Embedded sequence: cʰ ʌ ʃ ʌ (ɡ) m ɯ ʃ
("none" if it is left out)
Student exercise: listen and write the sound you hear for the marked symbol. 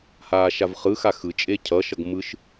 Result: ɡ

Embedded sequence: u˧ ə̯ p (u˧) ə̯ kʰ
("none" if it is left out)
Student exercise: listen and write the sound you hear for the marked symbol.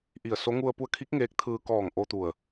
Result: u˧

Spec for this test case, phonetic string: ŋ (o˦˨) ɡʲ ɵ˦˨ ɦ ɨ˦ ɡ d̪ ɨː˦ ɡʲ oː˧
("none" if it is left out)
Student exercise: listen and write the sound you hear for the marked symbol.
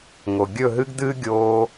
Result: o˨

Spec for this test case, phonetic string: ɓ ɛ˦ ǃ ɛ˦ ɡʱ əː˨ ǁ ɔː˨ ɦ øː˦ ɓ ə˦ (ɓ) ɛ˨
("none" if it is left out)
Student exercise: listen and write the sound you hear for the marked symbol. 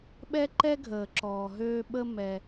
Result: m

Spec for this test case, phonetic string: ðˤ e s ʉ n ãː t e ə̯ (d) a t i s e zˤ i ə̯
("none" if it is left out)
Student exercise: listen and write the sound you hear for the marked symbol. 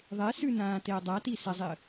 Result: dˤ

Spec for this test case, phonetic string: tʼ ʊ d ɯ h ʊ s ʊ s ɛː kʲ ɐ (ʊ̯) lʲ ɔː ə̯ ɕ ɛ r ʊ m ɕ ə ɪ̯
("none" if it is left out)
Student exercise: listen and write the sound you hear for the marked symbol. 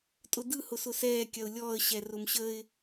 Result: ʊ̯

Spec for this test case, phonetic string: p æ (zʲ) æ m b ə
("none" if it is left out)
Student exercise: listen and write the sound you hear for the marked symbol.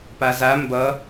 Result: z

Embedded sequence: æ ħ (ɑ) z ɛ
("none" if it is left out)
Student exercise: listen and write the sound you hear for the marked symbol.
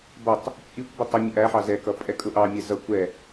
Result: ɑ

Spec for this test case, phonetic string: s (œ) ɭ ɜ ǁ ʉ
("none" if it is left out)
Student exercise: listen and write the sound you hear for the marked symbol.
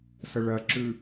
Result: ə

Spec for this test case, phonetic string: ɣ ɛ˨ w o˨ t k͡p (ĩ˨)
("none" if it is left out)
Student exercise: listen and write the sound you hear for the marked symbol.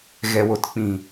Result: ĩ˨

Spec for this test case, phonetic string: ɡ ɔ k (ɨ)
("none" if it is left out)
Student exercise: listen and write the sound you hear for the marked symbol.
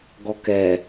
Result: ɛ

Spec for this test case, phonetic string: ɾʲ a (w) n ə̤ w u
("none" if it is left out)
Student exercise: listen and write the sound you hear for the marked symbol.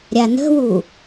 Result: none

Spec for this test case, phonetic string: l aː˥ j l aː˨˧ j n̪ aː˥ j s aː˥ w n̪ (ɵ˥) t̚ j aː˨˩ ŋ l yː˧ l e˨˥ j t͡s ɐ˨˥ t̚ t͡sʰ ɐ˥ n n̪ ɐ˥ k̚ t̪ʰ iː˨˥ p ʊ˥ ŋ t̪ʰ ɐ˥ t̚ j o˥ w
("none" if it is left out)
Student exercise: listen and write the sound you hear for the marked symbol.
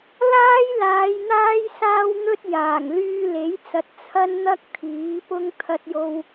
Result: ɵ˥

